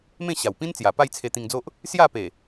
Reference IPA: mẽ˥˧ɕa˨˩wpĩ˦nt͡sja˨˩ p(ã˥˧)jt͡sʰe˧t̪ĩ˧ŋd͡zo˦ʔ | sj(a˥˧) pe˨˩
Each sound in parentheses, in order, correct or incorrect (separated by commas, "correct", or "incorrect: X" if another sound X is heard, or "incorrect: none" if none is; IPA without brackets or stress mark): incorrect: a˥˧, correct